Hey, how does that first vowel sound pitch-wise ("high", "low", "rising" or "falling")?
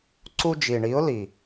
high